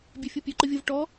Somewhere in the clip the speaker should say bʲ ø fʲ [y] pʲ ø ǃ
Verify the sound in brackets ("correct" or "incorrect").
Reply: incorrect